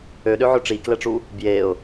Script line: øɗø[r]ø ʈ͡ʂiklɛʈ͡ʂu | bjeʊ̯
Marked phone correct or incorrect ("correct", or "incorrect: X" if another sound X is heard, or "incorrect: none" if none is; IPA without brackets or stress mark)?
incorrect: ʕ